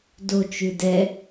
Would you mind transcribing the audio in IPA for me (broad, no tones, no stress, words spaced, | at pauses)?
do t͡ʃʉdɛ